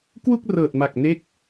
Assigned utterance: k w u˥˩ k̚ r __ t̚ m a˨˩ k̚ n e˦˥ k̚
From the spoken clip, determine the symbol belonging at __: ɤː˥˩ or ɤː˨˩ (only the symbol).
ɤː˨˩